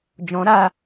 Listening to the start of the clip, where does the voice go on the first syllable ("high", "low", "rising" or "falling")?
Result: rising